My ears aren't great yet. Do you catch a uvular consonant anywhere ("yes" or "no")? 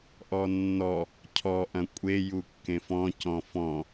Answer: no